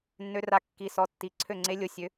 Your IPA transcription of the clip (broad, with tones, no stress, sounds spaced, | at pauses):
nː ø˦˥ r a˦˥ kː i˦˥ s ɔ˦˥ tː i˦˥ ǀʰ ø˥˧ ŋ͡ǀ e˦˥ lʲ o˦˥ sʲ ø˦˥